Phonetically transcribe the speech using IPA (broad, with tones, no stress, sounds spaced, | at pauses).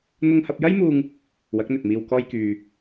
n̪ ʊ˧ ŋ h ɐ˧ p̚ j ɐ˥ j m uː˧ ŋ | w ɐ˨˥ k̚ n̪ ɵ˨ t̚ m iː˧ w k ɔː˥ j k yː˧